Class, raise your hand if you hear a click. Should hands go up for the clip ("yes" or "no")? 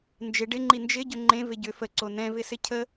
yes